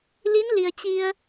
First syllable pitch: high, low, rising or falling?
rising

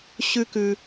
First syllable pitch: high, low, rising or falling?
high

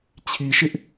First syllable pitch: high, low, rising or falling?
low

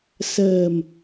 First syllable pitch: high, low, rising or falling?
low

